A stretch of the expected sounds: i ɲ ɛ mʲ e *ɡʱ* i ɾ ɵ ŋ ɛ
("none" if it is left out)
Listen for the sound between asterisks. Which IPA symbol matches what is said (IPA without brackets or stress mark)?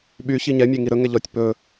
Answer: ŋ